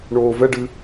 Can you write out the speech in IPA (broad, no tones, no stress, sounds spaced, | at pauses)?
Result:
ɳ oː v ɛ ɖ ɨ